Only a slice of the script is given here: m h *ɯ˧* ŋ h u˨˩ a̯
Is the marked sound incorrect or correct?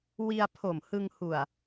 correct